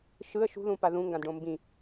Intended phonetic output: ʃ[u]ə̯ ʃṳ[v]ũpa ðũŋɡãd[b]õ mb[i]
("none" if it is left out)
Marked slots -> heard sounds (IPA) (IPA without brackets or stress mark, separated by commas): ɯ, ð, ɖ, ĩ